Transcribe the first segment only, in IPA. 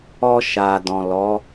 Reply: ɔ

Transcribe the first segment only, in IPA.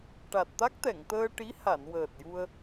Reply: ʈ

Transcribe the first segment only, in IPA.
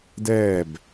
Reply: d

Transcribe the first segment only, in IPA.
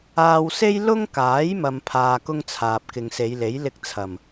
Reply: aː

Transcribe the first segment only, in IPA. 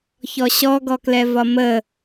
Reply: ç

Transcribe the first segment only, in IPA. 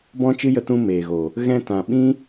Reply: b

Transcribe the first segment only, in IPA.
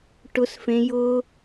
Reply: ʈ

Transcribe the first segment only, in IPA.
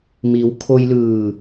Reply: m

